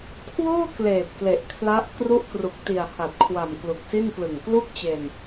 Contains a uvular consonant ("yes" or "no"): no